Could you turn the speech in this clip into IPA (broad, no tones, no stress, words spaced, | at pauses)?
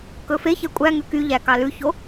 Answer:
kɵfeçɛ kʷʼæŋʉ kyʎæ kɑlʉço